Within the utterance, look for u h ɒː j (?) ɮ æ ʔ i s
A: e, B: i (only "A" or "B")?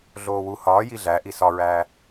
B